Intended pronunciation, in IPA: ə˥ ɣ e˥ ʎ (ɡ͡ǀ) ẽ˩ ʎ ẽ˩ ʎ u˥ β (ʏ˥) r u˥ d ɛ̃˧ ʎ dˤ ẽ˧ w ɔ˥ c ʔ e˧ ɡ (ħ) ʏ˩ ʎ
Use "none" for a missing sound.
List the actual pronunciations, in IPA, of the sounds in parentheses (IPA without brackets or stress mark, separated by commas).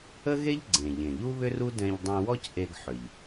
ɡ͡ǀ, ʏ˥, ħ